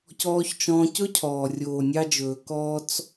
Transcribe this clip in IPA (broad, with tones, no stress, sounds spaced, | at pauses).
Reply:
c ɔː˧ ç t͡ʃ ɔ̃ː˧ c ɵ˦ cʰ ɔː˨ rʲ oː˨ nʲ ɑ˧ d͡ʒ ɵː˨ k ɔː˧ t͡s